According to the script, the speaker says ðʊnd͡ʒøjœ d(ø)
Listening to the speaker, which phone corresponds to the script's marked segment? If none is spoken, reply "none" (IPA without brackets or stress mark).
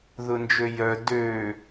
ø